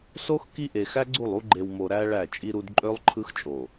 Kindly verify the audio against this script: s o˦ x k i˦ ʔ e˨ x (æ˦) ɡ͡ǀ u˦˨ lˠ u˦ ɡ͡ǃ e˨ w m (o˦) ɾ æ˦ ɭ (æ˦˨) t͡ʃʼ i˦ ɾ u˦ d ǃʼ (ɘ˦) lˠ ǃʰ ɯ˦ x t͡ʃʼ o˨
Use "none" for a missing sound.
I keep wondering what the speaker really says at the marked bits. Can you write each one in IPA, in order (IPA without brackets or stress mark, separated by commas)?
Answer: æ˦, o˨, æ˦˨, ø˦